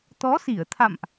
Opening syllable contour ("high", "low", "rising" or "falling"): rising